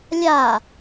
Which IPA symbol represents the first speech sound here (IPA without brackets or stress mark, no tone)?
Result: lʲ